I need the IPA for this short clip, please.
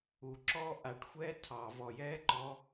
u ǁɔ ʔaʈxʷɛː tʰɑ vɔjɛːǃɔ

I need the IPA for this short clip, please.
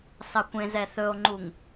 sɑkʷẽ zɛθɵo̯ŋ͡ǃuŋ

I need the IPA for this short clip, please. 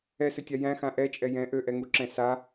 ɛsɘtʲa jæ̃xã ʔɛt͡ʃʼɛ jɛ̃ ʔøʔɛŋuǁɛ̃ sa

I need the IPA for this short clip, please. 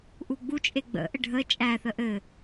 ʔuɡ͡but͡ʃʼe ɡ͡bə̰ʔɘ ɖʱə t͡ʃʼæθə ʔɘ

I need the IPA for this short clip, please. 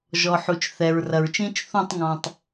ʒɔ˨ħu˨t͡ʃ θɛ˨ɹrɐ˨ɹt͡ʃĩ˦t͡ʃ θũ˦˨tˤŋɔ̃˨tˤ

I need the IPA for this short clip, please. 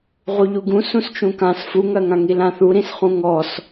ʁuʎuɡũ sũst͡ʃũkãs fuŋɜŋãŋi lãθuɾĩsχũ ŋɔs

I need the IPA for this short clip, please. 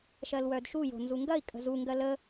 ʃɜlwœdʃu jo̤nzuŋɡɐi̯ kʼə̤zu ŋɡɜlə

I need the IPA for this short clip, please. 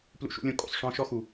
plṵ˦ʃṵ˦lʲõ˦kʼṵ˨sˤ ʂɔ̃˦ʃɔ˦ xu˨

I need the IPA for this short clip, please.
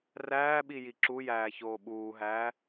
ræːɓi jiǁujæː çoːɓuːɦæː

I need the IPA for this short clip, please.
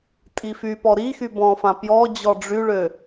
tʼifypɔ ɾixy bɔ̃fã pjɔd͡ʑɔ ɖ͡ʐyɭø

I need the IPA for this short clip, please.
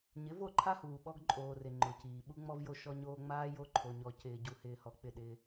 ɲɪ˨˦vo˦˨ǃʰa˦huː˨ ɓɔ˦ɡǃʼoː˨rɪ˨ ŋ͡ǃʊ˨ciː˨ ɓu˦ŋ͡mɔ˦vjo˦ ʃɔ˦ɲoː˦ ŋ͡maː˦ jo˦ǃʰo˨ɲɔ˨ cɪː˨ɟu˨hɪː˨hɔ˨ k͡pɪ˦˨ɗɪː˦

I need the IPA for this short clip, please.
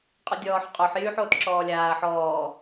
qʼydʲɔːħ qʼoħ jyːħoːtǁɔːlʲaːɐ̯ ħɔː

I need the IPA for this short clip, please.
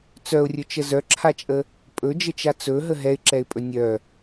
t͡sœʊ̯rʲɵt͡ʃə zœǁʰat͡ʃʼə | pʼɵd͡ʒət͡ʃa t͡sɵɦə ɦɛɪ̯ǁɛɪ̯pʼɵ nʲœ

